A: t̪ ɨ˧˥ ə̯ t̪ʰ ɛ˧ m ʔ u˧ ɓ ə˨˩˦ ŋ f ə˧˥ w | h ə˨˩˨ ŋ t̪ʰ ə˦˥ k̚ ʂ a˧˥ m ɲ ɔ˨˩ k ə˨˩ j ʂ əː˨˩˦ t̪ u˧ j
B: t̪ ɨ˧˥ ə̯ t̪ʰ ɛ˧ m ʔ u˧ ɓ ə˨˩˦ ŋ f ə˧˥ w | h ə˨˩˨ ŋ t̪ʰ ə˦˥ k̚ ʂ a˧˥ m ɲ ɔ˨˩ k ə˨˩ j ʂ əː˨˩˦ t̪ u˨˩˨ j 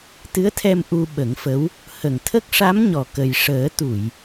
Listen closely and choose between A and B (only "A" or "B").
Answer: B